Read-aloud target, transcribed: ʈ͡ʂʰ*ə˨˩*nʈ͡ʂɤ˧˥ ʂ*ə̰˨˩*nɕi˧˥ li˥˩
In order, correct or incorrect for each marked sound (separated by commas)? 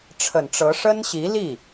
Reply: correct, incorrect